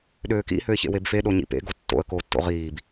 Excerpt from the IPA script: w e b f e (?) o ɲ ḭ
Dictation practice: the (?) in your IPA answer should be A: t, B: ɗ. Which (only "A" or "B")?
B